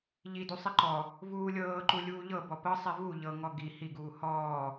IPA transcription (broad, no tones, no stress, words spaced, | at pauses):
ʎidu sˤiǃɔ | vuːlʲɤːǃu lʲuːʎɤ bɔpɤ sˤivu ʎɤŋɔ ɡi hiɡuː hɔː